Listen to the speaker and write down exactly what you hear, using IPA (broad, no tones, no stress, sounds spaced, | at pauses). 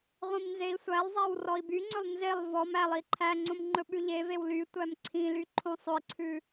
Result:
ʁʷ ĩ m n z e i̯ sʷ æ lˠ zˤ æ w r ɔ i̯ b y ŋ͡ǀ ɵ lˠ n z e lˠ v ɔ m æ lˠ i ǃʰ æ ŋ͡ǀ õ m ŋ͡ǃ ɵ ɓ ʉ ʎ e v e w l y tʷ æ m ǀʰ ĩ l y ǃʰ õ sˤ ɵ i̯ ǀʰ ʉ